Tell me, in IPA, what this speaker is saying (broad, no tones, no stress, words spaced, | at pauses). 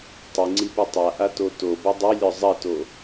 tˤiŋ͡ǀipu tˤaʔato tobɔ dˤilʲɔ zˤɐto